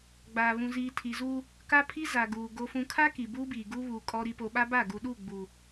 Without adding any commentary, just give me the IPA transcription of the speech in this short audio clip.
ɡ͡baː˨βũ˨ziː˨ tʰi˨zu˦ | ka˦pʰi˦ za˨ɡuː˨ ɡo˨fũ˨ kʰa˦ ki˨buː˦biː˨ ɡu˦βuː˨ kʼɔ˨ɾi˨ po˨ɓa˦ba˦˨ ɡu˨ɗu˦˨ɡ͡bu˨

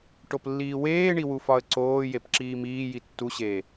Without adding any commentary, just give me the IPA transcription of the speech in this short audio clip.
ʈoplːiːweːɳi wufɒə̯ǀoːjep ǁiːmiːji tːuɕeː

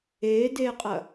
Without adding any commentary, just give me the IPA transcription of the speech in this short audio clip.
eːdeːqʼɐ

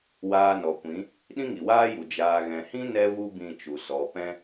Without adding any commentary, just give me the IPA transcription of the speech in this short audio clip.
waː˧nɔ˨kʷĩ˨˦ | ɗĩ˦ŋi˨waː˦ju˨ d͡ʒaː˨ɣɛ̃˨hĩ˦ nɛ˦vu˦ bĩ˦˨t͡ʃu˨sɔ˨˦ pɛ̃˦

